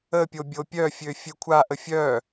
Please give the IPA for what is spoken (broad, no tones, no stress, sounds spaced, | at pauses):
ə pʲ o bʲ o pʲ œ fʲ ø fʲ e kʷʰ a ʔ ə fʲ œ